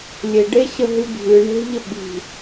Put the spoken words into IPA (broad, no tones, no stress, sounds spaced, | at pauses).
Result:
lʲ e ɖ e ɕ ə ɦ ɨ bʱ ɨ ɳ e̤ ʎ ə ɓ i̤